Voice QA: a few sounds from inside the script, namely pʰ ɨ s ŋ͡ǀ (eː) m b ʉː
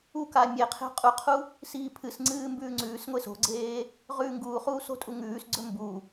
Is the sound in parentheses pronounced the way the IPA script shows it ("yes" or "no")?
no